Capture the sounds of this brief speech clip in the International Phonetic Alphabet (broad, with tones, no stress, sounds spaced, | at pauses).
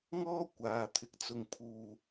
ŋ ɔː˥ kʷ aː˨ t̪ʰ ɪ˧ k̚ t͡s ʊ˧ ŋ pʰ uː˨